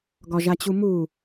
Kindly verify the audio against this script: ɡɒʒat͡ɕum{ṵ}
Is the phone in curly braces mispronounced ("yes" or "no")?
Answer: yes